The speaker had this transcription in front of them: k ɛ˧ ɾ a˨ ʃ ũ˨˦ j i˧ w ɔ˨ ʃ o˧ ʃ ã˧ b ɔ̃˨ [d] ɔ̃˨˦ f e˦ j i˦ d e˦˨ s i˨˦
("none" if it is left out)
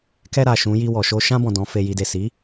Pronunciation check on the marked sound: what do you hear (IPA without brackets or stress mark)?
d